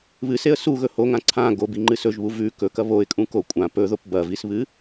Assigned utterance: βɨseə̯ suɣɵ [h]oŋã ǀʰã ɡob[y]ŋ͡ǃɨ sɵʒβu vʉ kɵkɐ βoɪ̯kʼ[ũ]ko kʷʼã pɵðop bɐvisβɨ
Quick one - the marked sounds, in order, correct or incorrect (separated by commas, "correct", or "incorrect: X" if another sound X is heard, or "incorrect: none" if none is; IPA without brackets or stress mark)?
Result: correct, incorrect: i, correct